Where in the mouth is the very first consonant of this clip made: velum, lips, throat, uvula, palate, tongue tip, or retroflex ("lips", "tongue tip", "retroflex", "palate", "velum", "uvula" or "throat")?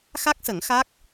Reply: velum